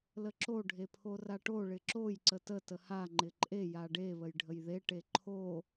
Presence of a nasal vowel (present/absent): absent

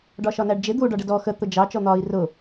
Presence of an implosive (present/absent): absent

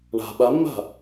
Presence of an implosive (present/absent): present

